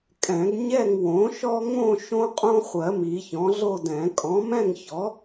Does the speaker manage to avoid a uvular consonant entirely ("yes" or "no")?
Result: no